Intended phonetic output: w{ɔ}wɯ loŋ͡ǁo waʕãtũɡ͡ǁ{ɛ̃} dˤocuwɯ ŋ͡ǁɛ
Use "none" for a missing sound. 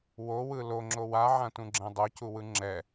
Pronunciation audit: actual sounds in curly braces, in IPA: o, ɛ̃

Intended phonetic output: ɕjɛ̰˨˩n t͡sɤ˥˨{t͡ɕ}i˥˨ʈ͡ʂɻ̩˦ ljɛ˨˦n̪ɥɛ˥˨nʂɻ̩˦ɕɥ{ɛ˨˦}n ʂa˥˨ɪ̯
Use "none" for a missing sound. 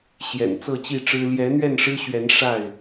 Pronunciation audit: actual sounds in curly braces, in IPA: t͡ɕ, ɛ˨˦

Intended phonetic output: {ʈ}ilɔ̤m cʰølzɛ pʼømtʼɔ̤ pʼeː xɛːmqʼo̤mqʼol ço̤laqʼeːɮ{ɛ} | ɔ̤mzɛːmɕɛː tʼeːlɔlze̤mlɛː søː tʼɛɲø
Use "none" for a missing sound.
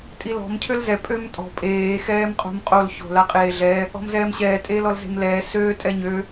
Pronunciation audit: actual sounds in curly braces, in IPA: tʼ, ɛ

